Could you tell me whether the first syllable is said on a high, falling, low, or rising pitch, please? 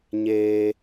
low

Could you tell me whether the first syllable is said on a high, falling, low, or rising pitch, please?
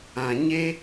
high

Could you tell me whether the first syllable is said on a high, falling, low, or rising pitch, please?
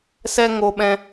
high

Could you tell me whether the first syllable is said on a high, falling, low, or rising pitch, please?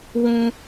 high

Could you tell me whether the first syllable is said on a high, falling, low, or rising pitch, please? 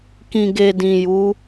low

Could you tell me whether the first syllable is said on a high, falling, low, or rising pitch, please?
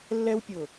high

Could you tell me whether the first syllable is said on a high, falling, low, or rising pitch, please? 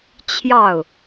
falling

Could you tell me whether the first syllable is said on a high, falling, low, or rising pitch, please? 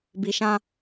low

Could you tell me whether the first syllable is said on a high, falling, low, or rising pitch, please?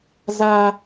high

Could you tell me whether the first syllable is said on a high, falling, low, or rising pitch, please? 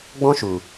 high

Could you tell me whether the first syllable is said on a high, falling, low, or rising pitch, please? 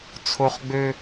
high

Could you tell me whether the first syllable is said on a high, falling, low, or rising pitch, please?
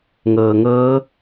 low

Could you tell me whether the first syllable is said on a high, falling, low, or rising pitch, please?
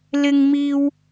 high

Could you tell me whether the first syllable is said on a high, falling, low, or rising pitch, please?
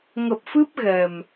low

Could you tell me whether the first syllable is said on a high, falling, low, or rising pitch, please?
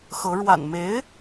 rising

